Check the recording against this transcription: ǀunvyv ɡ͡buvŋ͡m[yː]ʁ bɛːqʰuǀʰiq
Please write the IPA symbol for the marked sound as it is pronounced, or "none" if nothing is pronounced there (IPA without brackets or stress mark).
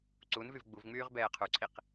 yː